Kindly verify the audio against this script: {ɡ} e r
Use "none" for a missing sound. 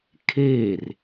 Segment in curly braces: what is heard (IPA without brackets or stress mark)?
kʰ